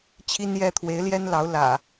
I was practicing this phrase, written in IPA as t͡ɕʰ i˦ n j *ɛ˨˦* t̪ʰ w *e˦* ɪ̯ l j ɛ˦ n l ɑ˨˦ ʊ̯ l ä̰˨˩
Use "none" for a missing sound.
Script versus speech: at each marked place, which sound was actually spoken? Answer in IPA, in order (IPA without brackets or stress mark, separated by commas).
ɛ˦, e˨˦